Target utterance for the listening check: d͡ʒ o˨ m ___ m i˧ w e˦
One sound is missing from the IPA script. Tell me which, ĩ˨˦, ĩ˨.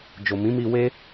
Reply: ĩ˨˦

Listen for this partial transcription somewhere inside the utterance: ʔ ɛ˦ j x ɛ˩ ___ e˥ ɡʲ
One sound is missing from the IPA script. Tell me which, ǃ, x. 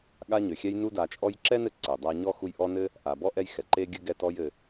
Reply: ǃ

